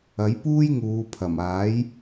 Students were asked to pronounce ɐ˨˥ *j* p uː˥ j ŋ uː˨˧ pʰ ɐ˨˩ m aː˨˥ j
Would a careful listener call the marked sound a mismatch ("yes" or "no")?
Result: no